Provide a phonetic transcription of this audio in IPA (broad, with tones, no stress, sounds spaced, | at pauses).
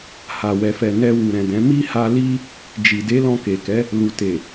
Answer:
h a˨ w ɛ˨ f ɛ˨ n ɛ˧ w u˨ ɾ ɛ̃˨ d ɛ̃˨˦ m i˦ h a˧ l i˦ | d͡ʒ i˨ d e˨˦ l ɔ̃˧ k e˨ k ɛ˨˦ | l u˨ t e˨